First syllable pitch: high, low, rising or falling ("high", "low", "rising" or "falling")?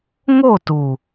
falling